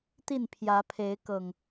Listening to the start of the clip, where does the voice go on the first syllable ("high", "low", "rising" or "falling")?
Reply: falling